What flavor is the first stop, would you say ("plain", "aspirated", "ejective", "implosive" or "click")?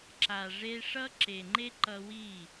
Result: click